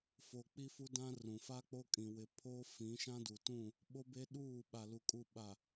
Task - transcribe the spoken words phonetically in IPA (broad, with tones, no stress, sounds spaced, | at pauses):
f o˨ k͡p i˦ f u˦ d ã˦ r ũ˨ f a˦ k͡p o˦ kʼ ĩ˨ w ɪ˨ pʰ o˦ f ĩ˨˦ ʃ ã˦ d u˨ t ũ˦˨ | ɓ o˦ b e˦ ɗ uː˦˨ ɓ a˨ l u˨ kʼ u˨ ɓ a˨